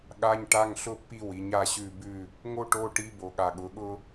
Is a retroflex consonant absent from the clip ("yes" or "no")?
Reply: no